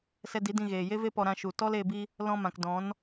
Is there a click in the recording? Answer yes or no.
no